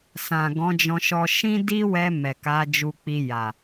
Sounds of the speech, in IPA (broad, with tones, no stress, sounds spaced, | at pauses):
s ã˨ ɡ ɔ̃˨˦ d͡ʒ ɔ̃˧ ʃ ɔ˧ ʃ ĩ˦ d i˦ w ɛ˧ m ɛ˨ k a˨˦ d͡ʒ u˧ k͡p i˧ j a˨